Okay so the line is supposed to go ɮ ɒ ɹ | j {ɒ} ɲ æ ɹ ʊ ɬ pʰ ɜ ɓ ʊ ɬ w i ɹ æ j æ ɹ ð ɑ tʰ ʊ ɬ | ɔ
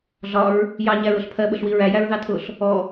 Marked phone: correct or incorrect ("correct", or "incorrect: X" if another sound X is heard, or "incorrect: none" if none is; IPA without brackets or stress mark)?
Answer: incorrect: ɑ